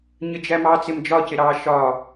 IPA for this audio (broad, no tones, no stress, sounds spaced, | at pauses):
ɲ ə d͡ʒ æ m ɑ t͡s ɪ m d͡ʒ ɒ c ɪ ɾ ɑ ʃ ɒ